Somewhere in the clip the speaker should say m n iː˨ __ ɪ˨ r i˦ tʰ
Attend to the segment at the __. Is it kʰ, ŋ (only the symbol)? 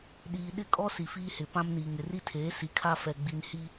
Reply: ŋ